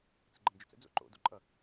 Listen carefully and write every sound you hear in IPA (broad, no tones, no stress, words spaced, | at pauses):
t͡səɡ͡ǃəmd͡ʒʉt͡sə̰ d͡zo̰ǃo̰ do̰ǃʼʌ